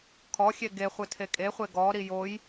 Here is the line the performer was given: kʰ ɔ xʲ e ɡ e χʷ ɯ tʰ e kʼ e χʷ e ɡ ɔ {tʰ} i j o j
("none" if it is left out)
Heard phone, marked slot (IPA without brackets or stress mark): ɾ